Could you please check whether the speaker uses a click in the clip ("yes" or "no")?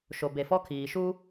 no